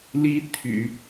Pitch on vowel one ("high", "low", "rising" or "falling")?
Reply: rising